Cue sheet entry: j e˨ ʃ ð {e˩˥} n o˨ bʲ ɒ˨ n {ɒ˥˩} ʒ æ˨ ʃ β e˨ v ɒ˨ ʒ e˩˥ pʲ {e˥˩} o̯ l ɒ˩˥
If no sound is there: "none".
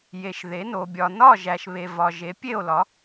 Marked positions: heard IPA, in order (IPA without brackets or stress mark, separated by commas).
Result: e˩˥, ɒ˥˩, e˥˩